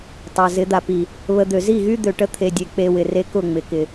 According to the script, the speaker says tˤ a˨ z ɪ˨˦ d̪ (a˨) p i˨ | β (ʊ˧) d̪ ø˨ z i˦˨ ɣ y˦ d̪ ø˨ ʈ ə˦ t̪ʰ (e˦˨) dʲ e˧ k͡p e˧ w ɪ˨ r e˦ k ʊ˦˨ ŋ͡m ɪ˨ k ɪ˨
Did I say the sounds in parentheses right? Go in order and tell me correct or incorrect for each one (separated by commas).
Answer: correct, incorrect, incorrect